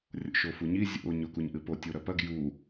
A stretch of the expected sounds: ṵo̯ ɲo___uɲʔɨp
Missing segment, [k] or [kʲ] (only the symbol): k